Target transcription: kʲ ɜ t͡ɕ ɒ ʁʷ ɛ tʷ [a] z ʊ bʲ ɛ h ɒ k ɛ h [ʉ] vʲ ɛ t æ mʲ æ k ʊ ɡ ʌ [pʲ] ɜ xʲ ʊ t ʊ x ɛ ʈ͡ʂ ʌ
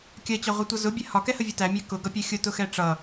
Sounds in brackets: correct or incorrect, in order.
incorrect: ʌ, incorrect: ə, correct

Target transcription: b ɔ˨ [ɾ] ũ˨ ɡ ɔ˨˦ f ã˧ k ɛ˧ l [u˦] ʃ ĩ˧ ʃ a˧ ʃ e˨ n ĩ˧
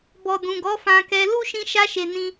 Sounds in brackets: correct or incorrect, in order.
incorrect: d, correct

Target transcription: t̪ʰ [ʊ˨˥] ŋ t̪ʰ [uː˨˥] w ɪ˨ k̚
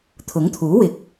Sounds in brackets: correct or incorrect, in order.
correct, correct

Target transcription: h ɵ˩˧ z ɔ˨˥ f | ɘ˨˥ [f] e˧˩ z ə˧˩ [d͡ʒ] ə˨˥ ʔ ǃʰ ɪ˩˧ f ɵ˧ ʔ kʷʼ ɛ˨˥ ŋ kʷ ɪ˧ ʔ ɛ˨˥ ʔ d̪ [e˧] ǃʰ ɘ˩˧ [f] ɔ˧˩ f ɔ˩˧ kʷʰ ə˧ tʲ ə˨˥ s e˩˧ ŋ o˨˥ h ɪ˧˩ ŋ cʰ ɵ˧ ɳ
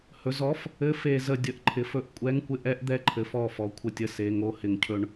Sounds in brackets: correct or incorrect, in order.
correct, incorrect: dʲ, incorrect: ɛ˧, correct

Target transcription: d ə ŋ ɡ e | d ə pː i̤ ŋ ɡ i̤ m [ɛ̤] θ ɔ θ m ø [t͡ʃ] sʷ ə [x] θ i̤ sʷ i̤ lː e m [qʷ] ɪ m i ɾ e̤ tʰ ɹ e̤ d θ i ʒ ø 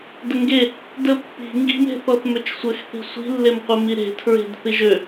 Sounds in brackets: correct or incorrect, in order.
incorrect: e̤, correct, correct, correct

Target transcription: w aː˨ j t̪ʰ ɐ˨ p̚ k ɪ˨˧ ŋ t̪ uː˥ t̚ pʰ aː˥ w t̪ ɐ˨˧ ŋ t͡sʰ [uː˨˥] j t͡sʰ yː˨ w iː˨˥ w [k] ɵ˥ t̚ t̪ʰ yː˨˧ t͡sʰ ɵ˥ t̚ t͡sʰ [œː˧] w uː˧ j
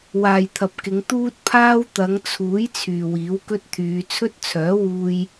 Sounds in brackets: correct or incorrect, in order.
correct, correct, incorrect: œː˨˥

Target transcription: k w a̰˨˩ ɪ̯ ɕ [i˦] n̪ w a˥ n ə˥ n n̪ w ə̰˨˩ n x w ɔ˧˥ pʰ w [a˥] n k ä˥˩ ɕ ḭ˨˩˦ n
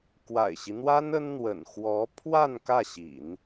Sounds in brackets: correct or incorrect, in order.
correct, incorrect: a˥˧

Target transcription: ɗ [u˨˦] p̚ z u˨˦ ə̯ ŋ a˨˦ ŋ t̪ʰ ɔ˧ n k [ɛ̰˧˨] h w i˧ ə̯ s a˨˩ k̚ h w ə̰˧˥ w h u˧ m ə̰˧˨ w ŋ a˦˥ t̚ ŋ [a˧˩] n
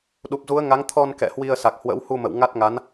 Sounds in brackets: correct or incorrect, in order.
incorrect: u˨˩, correct, incorrect: a˨˦

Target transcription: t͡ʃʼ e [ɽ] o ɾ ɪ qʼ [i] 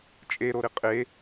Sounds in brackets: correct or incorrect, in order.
incorrect: ɾ, incorrect: e

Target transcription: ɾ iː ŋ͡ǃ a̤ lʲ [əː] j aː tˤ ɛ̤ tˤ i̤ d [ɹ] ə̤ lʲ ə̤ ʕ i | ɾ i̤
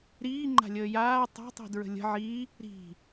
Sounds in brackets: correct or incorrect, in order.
correct, correct

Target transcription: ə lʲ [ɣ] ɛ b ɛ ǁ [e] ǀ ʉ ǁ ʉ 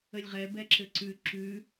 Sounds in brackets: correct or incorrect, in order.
incorrect: ʁ, incorrect: ɘ

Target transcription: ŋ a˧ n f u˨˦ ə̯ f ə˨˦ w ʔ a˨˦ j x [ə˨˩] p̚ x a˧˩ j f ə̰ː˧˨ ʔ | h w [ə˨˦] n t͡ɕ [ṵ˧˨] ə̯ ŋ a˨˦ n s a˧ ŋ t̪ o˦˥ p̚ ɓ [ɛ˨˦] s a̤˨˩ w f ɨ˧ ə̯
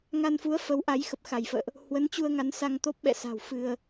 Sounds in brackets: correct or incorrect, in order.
correct, correct, incorrect: u˧, incorrect: ɛ̰˧˨

